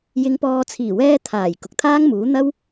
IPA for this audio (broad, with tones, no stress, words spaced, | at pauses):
jɪ˨˧ŋpɔː˨t͡sʰiː˨˩wɛː˧ t̪ʰaː˨˩j kʊ˨k̚t̪ʰaː˥ŋmuː˨˥ n̪ɐ˥w